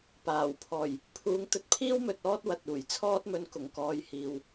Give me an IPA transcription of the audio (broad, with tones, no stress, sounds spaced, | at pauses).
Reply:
p aː˨˩ w pʰ ɔː˨˩ j | pʰ uː˨˧ ŋ t̪ ɵ˨˥ t̚ pʰ iː˥ w m ɵ˨˥ t̚ ɔː˥ t̚ w ɐ˨ t̚ uː˨˩ j t͡sʰ ɔː˥ t̚ m ɵ˧ n k ʊ˨˩ ŋ k ɔː˨ j h iː˨ w